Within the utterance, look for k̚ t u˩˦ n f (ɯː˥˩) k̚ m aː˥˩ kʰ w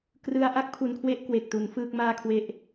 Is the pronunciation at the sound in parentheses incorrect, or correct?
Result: correct